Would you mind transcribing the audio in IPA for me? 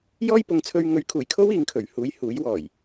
j ɔː˥ j p ʊ˨˧ ŋ t͡sʰ ɵ˧ ɥ ŋ ɵ˨˥ ɥ kʰ uː˨˩ j kʰ o˥ w iː˨˧ ŋ kʰ ɵ˨˩ ɥ h uː˨˧ j h uː˨˥ j w ɔː˨˩ j

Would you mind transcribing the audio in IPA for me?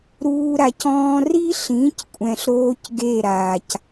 ɾ uː˧ ɾ a˧ c ɔ̃ː˦ r i˦ ɬ ĩ˨˦ c kʷʼ ɛ̃˨ ɬ ɾ oː˧ c ɡ e˦˨ ɾ aː˨ c

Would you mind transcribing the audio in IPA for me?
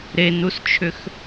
ɾ e n u s t͡ʃʰ ʏ x

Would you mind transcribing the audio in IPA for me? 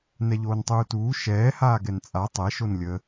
n ɛ ʎ oː n tˤ uː t uː ʃ ɛː h aː ɡ ɛ n t͡sʼ a tˤ ɛ ʃ o n lʲ ə

